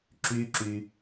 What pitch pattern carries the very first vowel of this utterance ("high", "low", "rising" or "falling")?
high